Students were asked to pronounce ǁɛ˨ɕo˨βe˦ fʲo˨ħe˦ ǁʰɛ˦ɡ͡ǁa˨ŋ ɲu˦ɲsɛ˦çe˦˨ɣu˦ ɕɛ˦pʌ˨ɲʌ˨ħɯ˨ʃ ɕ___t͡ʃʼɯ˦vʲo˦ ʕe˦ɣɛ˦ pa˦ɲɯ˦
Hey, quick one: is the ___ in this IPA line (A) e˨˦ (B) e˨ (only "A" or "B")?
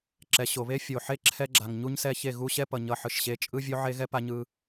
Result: A